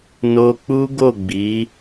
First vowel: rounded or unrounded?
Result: rounded